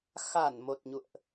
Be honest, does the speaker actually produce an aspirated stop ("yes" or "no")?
no